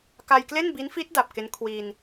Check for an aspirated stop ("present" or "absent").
present